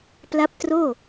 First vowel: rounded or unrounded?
unrounded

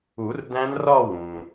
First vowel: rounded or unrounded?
rounded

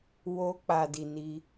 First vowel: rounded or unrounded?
rounded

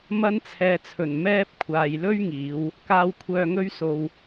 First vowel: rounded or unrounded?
unrounded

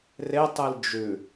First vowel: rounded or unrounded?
unrounded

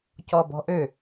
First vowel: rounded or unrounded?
rounded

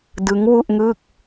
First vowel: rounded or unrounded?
unrounded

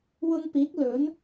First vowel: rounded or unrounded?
rounded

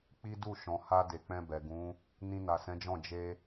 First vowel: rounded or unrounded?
unrounded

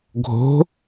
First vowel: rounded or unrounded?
rounded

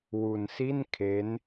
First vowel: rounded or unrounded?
rounded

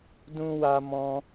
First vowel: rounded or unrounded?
rounded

